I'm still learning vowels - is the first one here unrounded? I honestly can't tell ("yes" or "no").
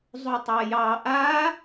no